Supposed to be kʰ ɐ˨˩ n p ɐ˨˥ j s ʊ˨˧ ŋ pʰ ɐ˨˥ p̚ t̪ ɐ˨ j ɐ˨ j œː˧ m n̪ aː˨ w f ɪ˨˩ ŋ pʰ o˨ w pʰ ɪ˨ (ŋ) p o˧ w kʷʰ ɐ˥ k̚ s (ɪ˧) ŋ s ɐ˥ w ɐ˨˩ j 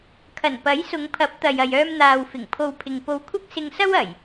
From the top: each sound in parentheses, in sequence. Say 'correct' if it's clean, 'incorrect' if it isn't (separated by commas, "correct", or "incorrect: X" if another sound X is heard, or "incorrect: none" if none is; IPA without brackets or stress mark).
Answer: correct, correct